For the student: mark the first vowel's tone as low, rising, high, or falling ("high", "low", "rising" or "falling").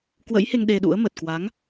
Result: rising